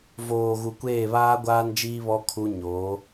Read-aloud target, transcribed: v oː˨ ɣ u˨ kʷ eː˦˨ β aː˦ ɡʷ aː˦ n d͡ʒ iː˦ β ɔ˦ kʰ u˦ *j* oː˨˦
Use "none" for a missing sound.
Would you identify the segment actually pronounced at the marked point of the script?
ɲ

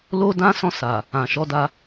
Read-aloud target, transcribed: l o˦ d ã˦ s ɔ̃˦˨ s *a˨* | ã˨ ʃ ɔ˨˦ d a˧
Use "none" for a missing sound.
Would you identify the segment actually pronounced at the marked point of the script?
a˨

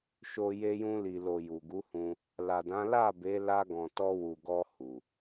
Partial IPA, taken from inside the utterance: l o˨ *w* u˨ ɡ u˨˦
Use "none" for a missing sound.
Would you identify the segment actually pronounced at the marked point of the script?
j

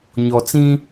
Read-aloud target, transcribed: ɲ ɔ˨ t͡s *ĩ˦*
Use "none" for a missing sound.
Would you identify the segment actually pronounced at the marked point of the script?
ĩ˦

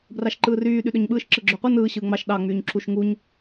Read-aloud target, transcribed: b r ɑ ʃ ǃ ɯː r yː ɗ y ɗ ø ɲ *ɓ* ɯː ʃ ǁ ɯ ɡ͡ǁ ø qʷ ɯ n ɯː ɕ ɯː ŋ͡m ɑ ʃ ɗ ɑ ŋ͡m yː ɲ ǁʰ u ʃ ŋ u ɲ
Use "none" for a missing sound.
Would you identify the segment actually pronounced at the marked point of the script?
ɓ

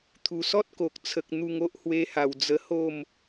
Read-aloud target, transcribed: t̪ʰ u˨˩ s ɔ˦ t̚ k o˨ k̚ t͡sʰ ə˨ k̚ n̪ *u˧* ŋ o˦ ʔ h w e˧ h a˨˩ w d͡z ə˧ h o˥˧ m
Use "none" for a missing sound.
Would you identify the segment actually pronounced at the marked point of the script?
u˧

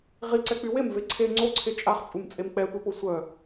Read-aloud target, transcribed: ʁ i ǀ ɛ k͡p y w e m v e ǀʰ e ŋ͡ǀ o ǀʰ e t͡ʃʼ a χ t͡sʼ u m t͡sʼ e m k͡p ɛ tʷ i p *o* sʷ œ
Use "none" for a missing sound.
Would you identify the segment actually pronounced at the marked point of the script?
o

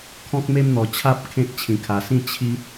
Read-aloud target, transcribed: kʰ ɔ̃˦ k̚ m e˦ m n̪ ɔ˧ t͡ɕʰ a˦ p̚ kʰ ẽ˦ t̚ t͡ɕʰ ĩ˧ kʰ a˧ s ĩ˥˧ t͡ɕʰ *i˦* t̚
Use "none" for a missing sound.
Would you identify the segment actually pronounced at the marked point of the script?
i˦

